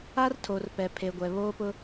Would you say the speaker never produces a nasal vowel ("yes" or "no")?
yes